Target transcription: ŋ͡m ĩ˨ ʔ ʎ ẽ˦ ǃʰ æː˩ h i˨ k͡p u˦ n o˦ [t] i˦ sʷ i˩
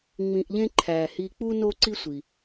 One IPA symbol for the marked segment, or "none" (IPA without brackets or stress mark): ǀ